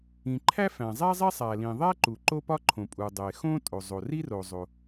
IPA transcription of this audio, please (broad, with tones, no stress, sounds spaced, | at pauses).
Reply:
ĩ˩ ǃʰ æ˥ f æ̃˩ zˤ æ˥ zˤ e˥ sˤ æ˩ l ĩ˩ ðˤ æ˥ ǃ u˩ ǃ o˥ p ɒ˥ ǃʰ õ˩ pʼ u˩ dˤ e˩ x õ˥ tʼ o˩ zˤ o˩ r i˥ r o˩ zˤ o˩